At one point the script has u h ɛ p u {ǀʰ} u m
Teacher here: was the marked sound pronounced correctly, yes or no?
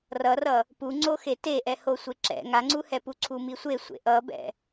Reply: yes